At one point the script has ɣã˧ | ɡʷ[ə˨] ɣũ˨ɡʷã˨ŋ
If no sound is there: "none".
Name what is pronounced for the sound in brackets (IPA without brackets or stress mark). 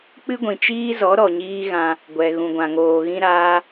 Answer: ɛ˨